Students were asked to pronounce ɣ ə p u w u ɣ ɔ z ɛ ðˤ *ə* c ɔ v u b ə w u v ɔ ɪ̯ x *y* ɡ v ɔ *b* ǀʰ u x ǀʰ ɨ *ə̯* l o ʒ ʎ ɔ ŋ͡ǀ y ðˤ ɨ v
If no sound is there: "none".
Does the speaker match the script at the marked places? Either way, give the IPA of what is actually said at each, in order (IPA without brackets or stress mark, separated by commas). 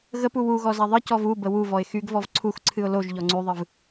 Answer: ɨ, y, v, ʊ̯